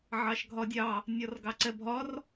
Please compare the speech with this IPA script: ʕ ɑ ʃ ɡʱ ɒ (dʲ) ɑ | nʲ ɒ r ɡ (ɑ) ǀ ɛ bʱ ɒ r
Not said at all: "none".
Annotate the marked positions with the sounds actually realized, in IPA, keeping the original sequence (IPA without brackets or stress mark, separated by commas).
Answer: dʲ, ɑ